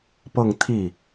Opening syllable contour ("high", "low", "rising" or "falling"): falling